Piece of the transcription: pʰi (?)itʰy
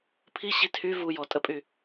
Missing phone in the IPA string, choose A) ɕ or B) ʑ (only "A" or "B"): A